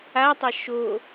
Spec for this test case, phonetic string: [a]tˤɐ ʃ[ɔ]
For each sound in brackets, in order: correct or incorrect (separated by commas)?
correct, incorrect